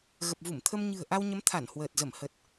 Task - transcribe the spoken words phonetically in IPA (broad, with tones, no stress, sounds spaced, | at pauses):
ɣ ə˨˩ p̚ v u˧˩ m t̪ʰ ə˧ m ɲ ɨ̤˨˩ ə̯ ʔ a˧ w ɲ ə˨˦ m t̪ʰ a˧˩ n h w əː˨˩ t̚ z ə˧˩ m h ə˨˩ t̚